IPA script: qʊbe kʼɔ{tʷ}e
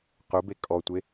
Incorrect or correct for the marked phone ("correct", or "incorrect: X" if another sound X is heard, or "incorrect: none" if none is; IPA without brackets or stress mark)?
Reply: correct